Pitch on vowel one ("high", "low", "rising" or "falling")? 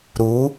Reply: rising